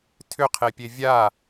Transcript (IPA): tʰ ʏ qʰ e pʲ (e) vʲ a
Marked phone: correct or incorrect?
correct